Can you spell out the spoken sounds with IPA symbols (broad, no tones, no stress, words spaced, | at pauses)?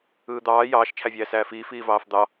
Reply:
ɯːd̪ɑː jɑːʃ t͡ʃʰævʲæːsæːfiː fiːvɑːfd̪ɑ